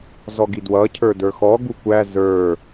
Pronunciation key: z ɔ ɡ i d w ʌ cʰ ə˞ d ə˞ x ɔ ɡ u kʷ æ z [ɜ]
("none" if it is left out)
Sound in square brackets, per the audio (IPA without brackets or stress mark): ə˞